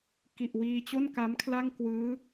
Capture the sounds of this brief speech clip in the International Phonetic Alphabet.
ki˨˩ʔwiː˧t͡ɕo˥˩n ka˦˥mkʰla˥˩ŋkwɯː˦˥

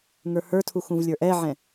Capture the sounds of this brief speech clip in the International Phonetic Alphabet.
ŋə˞hə˞tʰu xũvlʲə˞ʔɛʕɛ̃

